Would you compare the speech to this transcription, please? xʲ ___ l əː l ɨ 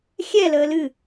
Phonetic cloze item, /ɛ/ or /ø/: ɛ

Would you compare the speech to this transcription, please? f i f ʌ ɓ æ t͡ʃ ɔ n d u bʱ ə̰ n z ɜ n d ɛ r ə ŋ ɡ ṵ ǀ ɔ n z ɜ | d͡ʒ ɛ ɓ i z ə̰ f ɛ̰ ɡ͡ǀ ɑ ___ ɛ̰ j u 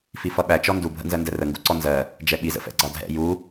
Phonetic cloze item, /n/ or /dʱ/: dʱ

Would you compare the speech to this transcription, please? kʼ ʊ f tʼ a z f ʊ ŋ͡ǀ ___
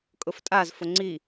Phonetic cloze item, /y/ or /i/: i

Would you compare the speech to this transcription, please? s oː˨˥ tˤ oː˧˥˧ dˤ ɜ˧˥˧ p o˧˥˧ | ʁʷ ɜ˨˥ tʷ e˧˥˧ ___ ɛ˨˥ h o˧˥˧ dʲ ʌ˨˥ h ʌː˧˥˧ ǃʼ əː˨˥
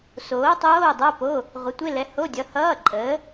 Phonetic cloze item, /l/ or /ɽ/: l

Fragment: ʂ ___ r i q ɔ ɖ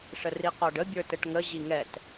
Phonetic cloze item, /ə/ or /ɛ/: ə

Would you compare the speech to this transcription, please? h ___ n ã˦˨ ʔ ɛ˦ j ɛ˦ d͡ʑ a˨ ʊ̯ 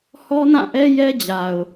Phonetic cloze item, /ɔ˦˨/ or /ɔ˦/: ɔ˦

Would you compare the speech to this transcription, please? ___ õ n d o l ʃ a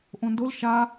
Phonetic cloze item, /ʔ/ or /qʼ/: ʔ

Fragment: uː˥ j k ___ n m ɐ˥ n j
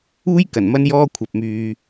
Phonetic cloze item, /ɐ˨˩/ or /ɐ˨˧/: ɐ˨˩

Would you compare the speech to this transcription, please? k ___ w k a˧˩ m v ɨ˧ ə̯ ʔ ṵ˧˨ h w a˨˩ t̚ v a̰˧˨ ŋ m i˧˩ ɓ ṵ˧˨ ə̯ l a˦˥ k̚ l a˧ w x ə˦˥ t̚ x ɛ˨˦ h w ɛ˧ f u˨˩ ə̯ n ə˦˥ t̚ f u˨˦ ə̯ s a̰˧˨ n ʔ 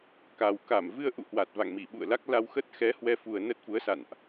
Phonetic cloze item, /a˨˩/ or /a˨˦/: a˨˩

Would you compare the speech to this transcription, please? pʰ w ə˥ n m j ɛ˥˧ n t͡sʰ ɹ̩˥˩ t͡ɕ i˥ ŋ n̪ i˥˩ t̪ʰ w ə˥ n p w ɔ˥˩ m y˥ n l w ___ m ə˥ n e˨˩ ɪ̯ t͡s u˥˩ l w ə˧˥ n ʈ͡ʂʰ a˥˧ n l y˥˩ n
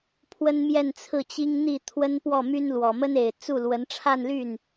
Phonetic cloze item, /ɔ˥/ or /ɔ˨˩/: ɔ˨˩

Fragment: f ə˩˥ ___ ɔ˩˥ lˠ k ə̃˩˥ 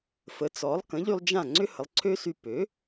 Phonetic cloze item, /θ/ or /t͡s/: t͡s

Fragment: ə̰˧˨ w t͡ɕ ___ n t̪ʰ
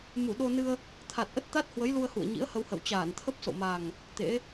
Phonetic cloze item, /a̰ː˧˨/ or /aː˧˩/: aː˧˩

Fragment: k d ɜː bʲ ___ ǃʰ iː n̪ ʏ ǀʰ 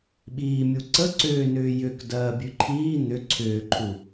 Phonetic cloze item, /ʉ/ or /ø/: ʉ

